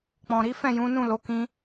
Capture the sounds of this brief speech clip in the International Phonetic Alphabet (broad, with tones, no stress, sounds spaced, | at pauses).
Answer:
k͡p ɔ̃˨ ɾ i˨˦ f ɛ̃˦˨ j ũ˨˦ n ũ˦˨ l o˨˦ k ĩ˦